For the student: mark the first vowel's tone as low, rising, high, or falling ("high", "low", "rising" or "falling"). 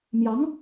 rising